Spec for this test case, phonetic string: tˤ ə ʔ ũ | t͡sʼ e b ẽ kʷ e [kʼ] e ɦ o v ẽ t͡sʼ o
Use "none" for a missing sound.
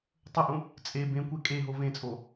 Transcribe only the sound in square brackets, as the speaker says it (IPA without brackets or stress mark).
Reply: kʼ